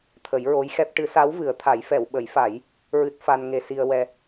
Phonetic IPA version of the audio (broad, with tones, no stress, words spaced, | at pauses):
t̪ʰə˨˩˦jɹo˧˥jxɛ˦˥p̚ ʈɨ˨˩˦sa˧˥w vɨ˨˩˦ə̯t̪ʰa˨˩˦j fɛ˨˩˨wɓə˨˩˦jfa˨˩˦j | ɹɨ˦˥t̚fa˧n ŋe˧si˧ə̯ wɛ˧